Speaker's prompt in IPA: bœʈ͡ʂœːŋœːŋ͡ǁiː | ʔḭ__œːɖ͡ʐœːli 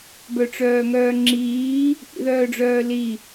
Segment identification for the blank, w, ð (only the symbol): ð